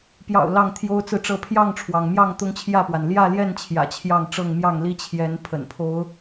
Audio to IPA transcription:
p j ɑ̰˨˩ ʊ̯ l ɑ˥˨ ŋ t̪ʰ j o˦ ʊ̯ t͡s ɹ̩˥˨ ʈ͡ʂ ɤ˥˨ pʰ j ɑ˥˨ ŋ ʈ͡ʂʰ w ɑ˩ ŋ m j ɑ˥˨ ŋ t̪ ʊ˦ ŋ t͡ɕʰ j ä˥˨ p w a˩ n l j ä˥˨ l j ɛ˥˨ n t͡ɕʰ j ä̰˨˩ t͡ɕʰ j ɑ˥˨ ŋ ʈ͡ʂ ɤ˥˨ ŋ m j ɑ˥˨ ŋ l i˦ t͡ɕʰ j ɛ˨˦ n pʰ ə̰˨˩ n pʰ o˨˦ ʊ̯

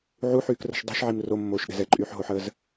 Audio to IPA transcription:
ʕ u ħ yː k r ə̤ ʃ dˤ i̤ ʃ ʕ i m r o mː oː ʃ ɗ ɛ̤ z ɛ ǃʼ yː ħ ɦ o ħ əː z

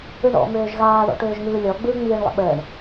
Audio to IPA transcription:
ɯ ɳ ɔ̰ m øː ʒ ɣ aː ð ɔ̰ ʈ øː ʒ ŋ ɯː lʲ ɔ ɡ͡b ɯː ŋ͡m iː ɳ lˠ ə̰ ɓ əː ɳ

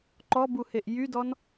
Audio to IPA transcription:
ǃ ɔ b u h e ʔ j y d ɔ n

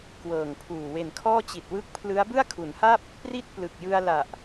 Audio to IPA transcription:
k w ɤː˨˩ ŋ pʰ uː˨˩ w e˨˩ n kʰ ɔː˥˩ t͡ɕ i˨˩ t̚ w ɯ˦˥ k̚ pʰ l ɯ˦˥ a̯ b ɯ˥˩ a̯ kʰ u˩˦ n h a˥˩ p̚ | p r i˥˩ t̚ p l ɯ˨˩ k̚ j ɯ˧ a̯ l a˨˩ ʔ

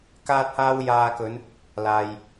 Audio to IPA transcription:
k aː˥ t̚ h aː˥ w j aː˧ k ɵ˨˧ n | l aː˨ j

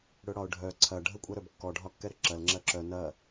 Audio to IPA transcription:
ɽ ɵ ɽ ɒ ʊ̯ ɖʱ œ ǀʰ ɐ ɖʱ ə kʷʼ ɐ ɾ œ b kː ɔ ɖʱ ɒ kː ɛ ɾ ə ǁ ɐ l ŋ͡ǁ ɐ ǁ œ n ɐ

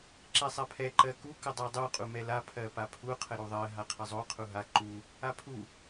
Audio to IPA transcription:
ǁ ɛ sˤ a pʰ ɛ ǃ ɜ k u k ə dˤ ɜ dˤ u qʼ u m ɛ l a pʰ ɜ p a pʰ u qʰ ə ɾ u ðˤ ɜ ɦ a qʰ ə zˤ o qʰ u ɦ a ǃ u | a pʰ u

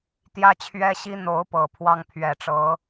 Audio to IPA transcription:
t̪ j ä˥ t͡ɕʰ ɥ ɛ˥ ɕ i˥ n̪ o˧˥ ʊ̯ p ɤ˨˩ pʰ w ɑ˥ ŋ pʰ ɥ ɛ˨˩ ʈ͡ʂ ɤ˧˥

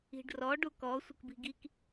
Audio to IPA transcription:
i̤ ɖ r ɔ ɖ u k ɔ sʷ ə k b i̤ ɡ i k

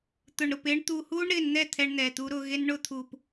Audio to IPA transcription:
t̪ ʊ˨ ɳ ɾ ʊ˨ p ɪː˦ ɳ t̪ uː˨ h uː˦ ɳ ɾ ɪː˨ n n̪ ɛ˦˨ t̪ʰ ɛ˦ ɳ n̪ ɛ˨ t̪ u˦ ɾ ʊː˦ ɣ e˦ n ɳ ʊː˦ t̪ʰ u˨ p

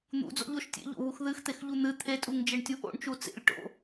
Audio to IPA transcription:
n̪ ṵ d͡z o̰ ʎ o ʃ tʲ ḛ ʎ o̰ β u x ð ɨ x t̪ e x ʎ u n̪ ɨ t̪ʰ e tʼ u ŋ d͡ʒ e ɳ tʲ u ʔ o̰ ɳ t͡ʃ u t͡s ḛ lʲ ʈ o̰

